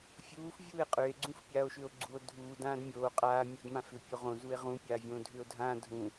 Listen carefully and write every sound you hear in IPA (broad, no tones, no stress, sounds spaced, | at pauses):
fʲ uː f vʲ uː e̯ qʼ ʏ e̯ ɡ͡ǀ ũ f pʲ aː o̯ ʃ ʏ o̯ ɡ͡ǀ u o̯ dʱ uː d ãː d mʲ oː qʼ aː mʲ o d m ã f ʏ pʲ o ʁ õ z u e̯ ʁ ũ pʲ aː vʲ õː dʱ ʏː o̯ dʱ ãː dʱ ũ